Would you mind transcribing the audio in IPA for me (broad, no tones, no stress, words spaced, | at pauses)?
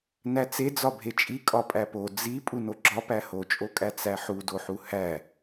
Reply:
næt͡sed͡zɒ bʱet͡ʃʼi kʼɒpʼæpo d͡zi pʼunoɡ͡ǁɒ pæhot͡ʃʼokʼæ t͡sæħudoħu hæ